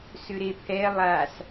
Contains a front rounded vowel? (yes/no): yes